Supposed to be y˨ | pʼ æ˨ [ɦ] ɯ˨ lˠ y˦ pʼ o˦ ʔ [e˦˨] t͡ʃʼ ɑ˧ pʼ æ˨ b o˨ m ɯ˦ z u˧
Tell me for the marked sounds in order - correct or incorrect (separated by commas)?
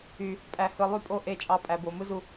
incorrect, correct